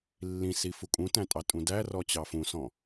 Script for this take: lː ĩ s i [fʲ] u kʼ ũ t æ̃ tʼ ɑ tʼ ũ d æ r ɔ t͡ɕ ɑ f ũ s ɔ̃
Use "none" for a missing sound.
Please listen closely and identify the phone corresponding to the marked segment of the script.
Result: f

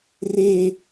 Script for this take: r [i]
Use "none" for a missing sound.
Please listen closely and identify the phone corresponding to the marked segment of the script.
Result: e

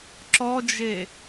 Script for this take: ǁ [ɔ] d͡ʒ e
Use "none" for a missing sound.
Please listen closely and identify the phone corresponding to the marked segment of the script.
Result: ɔ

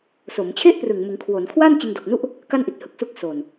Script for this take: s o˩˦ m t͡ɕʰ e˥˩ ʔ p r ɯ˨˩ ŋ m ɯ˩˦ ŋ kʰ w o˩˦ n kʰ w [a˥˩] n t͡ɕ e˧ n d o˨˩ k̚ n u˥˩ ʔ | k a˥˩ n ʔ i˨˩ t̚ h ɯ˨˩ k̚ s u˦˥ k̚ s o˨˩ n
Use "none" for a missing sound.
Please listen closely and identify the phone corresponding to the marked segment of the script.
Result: a˥˩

